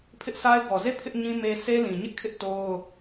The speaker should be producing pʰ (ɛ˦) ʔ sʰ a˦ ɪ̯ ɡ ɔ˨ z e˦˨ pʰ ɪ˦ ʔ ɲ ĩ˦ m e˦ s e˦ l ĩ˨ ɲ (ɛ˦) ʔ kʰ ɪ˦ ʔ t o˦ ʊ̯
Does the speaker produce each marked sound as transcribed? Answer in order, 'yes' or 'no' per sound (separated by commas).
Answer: no, no